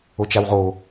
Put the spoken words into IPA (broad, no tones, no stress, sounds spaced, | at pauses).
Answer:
o t͡ʃ a w ʁ o